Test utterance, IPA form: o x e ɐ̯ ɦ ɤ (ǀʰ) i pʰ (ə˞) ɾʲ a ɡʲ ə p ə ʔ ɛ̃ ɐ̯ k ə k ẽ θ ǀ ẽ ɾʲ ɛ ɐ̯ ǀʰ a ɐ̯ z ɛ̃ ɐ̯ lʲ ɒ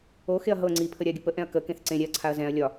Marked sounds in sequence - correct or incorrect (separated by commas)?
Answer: incorrect, incorrect